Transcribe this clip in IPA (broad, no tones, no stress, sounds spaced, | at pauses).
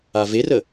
a v e r ə